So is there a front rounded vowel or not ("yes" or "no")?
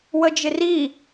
no